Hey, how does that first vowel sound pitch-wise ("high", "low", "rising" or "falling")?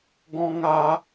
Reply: high